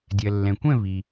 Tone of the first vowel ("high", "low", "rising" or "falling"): low